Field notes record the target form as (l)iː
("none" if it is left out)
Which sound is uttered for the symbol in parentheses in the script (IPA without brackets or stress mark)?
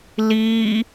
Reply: l